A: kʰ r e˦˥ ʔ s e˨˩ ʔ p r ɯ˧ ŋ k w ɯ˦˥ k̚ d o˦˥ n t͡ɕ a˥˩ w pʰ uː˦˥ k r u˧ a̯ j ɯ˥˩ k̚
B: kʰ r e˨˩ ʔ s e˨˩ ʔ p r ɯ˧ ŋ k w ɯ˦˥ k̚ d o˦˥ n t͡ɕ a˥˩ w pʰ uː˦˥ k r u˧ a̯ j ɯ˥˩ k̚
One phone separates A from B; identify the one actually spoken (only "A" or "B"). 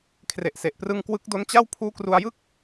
B